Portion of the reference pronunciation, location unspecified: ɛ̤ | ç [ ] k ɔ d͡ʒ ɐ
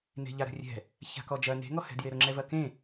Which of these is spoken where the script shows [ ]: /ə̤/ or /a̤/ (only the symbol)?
a̤